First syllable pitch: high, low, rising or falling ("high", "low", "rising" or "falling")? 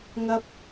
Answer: low